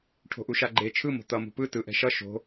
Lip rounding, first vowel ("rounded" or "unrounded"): rounded